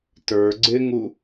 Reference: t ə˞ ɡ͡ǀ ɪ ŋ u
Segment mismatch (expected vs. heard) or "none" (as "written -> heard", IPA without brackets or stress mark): none